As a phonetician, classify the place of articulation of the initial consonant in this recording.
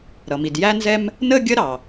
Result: alveolar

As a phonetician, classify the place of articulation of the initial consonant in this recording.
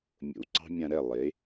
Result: labial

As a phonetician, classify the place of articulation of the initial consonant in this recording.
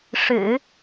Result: retroflex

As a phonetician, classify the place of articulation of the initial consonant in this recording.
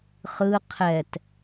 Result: uvular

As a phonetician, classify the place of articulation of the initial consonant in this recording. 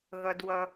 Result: velar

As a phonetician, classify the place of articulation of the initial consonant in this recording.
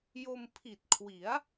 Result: palatal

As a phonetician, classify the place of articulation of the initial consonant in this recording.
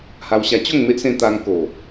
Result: glottal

